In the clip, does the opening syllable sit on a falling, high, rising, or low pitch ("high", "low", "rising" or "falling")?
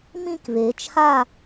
falling